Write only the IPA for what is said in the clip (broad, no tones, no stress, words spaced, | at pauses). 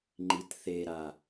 ŋ͡ǃitθeɾa